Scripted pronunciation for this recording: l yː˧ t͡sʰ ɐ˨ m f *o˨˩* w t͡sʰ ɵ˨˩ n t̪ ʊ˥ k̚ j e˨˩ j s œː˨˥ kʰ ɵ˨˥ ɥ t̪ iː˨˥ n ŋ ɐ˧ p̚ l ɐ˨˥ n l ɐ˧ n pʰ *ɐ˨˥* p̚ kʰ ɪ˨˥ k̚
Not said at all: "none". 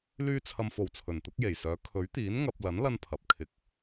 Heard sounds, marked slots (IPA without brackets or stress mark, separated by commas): o˨˩, ɐ˨˥